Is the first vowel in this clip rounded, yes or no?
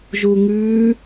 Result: yes